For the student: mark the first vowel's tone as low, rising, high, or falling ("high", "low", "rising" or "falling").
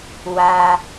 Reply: low